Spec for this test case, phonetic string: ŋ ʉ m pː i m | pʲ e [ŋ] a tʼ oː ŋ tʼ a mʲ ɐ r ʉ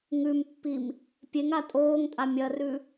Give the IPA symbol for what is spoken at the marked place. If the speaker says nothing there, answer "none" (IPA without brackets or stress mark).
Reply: ŋ